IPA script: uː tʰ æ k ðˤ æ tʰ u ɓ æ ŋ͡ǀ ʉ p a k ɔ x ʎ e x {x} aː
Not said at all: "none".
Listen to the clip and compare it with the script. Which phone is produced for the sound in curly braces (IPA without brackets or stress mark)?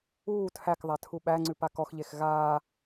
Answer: ɣ